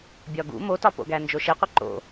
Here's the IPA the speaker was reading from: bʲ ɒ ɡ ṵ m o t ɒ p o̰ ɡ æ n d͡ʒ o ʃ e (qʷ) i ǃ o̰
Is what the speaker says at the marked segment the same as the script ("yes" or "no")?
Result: yes